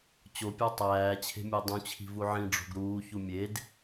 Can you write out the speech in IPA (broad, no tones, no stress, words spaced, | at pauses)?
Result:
t͡ɕopʲɑ tˤæːt͡ɕʰe̤ mʲedˤũt͡ɕʰi̤ vuʕĩɖ͡ʐo̤ɡ ɾuːçu mʲed